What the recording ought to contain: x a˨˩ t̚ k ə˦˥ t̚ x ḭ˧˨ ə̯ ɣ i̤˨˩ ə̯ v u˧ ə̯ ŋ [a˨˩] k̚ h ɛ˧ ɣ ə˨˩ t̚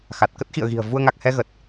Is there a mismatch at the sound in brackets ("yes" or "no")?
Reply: no